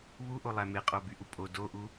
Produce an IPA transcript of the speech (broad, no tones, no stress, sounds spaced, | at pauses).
β u ʔ o lˠ æ m e qʼ o b y ʔ u pʼ o d o ʔ u